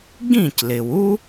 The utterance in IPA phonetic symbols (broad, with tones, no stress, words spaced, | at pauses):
ɡĩ˥˩clɪ˩w u˥